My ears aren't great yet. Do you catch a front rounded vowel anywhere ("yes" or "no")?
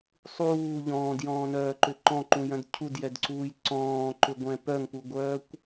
yes